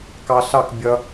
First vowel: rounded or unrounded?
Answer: unrounded